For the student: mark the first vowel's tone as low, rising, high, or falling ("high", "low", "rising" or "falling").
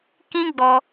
high